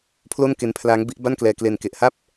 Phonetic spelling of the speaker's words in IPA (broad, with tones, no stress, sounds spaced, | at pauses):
pʰ l o˥˩ n k e˧ n pʰ l aː˦˥ ŋ b i˦˥ ʔ b a˥˩ n k l ɛː˧ k l e˧ n k e˨˩ ʔ h a˥˩ p̚